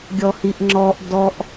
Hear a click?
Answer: yes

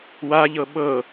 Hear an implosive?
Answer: yes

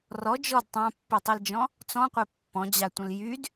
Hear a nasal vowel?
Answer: yes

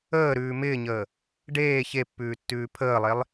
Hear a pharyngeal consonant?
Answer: no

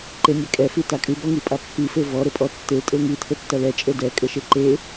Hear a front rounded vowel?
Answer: no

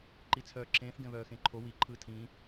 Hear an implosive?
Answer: no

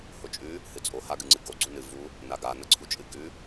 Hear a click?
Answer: yes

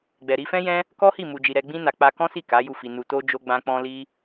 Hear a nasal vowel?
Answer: yes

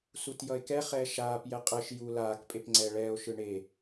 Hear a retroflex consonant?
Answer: yes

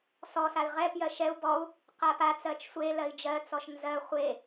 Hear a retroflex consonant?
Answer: no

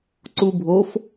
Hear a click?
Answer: yes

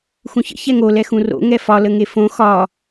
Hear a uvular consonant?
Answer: no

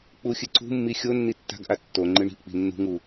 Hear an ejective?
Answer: no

